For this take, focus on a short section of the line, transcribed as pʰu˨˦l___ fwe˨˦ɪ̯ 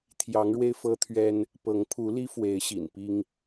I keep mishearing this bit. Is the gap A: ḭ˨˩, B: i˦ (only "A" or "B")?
B